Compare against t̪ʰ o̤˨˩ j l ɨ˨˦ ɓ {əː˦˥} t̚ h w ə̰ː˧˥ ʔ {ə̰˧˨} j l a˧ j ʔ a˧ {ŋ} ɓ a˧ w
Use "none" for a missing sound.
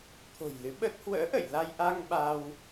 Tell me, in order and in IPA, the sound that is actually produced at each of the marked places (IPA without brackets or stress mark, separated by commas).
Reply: əː˦˥, ə̰˧˨, ŋ